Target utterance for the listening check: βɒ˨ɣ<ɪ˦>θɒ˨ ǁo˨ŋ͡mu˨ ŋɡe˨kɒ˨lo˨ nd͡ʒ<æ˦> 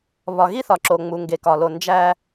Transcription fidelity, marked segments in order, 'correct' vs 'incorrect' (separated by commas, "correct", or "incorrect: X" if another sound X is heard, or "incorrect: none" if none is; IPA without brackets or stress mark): incorrect: i˦, correct